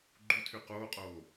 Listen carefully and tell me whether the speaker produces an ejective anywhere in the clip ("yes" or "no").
yes